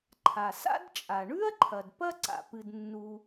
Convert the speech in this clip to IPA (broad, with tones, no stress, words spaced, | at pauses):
ǃʰa˩sa̰˥dt͡ʃʼa˩ ɳʉ˥ɐ̯ǃʰɐ˩d pɐ˥ ǀa̰˩pɨ˩dnːu˩